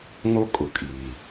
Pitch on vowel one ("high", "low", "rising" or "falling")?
high